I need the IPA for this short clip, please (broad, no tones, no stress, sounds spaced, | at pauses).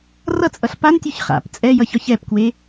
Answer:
r ʌ t͡sʼ ʌ ɬ p a n tʲ ʉ ç χ a̰ p t͡sʼ ɛ j ʌ ç ɒ ç ɛ p k w e